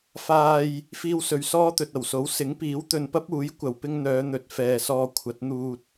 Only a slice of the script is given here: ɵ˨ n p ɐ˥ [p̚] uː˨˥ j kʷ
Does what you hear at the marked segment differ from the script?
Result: no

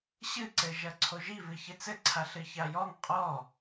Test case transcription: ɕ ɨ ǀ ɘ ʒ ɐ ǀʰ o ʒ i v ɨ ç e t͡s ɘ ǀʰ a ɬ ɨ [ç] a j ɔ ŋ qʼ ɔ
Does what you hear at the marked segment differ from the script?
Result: no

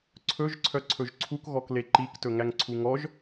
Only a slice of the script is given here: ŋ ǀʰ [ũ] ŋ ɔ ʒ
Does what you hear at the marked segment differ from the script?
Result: yes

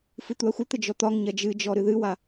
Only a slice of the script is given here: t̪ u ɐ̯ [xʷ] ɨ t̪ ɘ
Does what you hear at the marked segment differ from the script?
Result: no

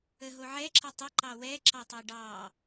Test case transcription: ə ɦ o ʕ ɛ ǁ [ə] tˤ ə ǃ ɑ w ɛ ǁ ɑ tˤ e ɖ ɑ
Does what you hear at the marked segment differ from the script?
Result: no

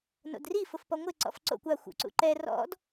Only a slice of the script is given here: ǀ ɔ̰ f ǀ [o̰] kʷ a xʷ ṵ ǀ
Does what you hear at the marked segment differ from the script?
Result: no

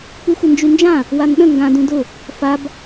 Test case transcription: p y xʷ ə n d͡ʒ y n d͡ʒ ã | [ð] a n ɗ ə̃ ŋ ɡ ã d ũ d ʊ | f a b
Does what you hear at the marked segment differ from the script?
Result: yes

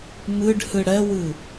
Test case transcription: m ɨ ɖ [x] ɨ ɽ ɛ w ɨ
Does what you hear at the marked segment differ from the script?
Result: yes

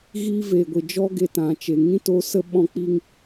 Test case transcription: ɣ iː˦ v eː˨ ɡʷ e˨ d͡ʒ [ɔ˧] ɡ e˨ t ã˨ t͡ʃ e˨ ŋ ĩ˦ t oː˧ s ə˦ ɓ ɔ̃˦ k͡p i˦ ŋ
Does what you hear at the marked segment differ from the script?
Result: yes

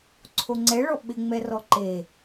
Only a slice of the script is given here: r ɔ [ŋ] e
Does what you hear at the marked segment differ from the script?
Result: yes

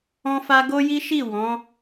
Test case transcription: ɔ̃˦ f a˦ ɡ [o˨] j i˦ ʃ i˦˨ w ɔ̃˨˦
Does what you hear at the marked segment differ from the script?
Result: yes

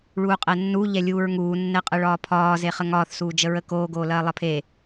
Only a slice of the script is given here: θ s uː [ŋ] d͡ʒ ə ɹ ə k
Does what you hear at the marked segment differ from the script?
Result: yes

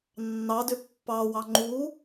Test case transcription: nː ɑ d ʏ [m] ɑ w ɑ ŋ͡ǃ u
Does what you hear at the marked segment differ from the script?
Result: yes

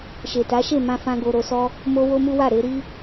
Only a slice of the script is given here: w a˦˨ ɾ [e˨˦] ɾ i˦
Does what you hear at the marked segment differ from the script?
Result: no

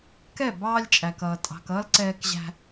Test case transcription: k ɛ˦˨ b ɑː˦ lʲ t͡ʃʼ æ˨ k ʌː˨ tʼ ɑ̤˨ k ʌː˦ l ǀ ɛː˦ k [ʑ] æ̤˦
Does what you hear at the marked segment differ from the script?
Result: no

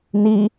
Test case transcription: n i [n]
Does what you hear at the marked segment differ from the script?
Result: yes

